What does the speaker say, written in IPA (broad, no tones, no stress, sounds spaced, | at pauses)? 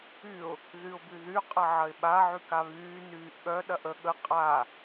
y ʊ̯ | ð y ʊ̯ b y ð y qʼ ɐ ʕ ɐ ɪ̯ ɓ a ʕ y k a β yː n yː ʔ ɠ œ ɗ ɐ ʔ ə ɠ ə qʼ a